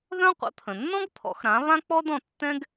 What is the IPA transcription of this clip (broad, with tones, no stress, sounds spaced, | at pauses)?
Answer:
ð œ̃˥ qʷ ə̰˩˥ t̪ʰ ə̃˩ nː ɔ̃˥ ɡ t̪ʰ ɔ̰˩˥ x ɾ ã˩˥ β ã˥ k͡p ɔ˥ d ɔ̃˥˩ tː ɛ̃˥ ɡ